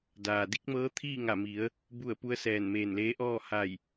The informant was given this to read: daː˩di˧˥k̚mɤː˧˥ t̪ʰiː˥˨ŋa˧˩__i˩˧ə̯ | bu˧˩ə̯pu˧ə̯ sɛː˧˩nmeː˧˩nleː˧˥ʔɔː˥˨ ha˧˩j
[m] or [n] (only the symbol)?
m